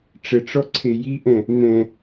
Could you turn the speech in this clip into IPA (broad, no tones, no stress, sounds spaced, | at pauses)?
ʈ͡ʂ ə ʈ͡ʂ ɔ ǀʰ e j i ʔ ɛ̃ | n̪ ɛ̃